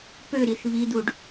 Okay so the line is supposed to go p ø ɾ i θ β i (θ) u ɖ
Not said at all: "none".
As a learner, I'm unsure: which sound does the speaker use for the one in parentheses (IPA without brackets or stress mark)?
d̪